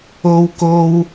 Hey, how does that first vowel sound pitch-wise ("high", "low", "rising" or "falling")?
high